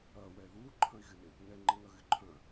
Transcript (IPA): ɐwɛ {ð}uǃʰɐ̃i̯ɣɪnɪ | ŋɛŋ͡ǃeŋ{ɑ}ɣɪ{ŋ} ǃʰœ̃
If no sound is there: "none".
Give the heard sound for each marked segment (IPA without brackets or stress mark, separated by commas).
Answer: ð, ɐ, none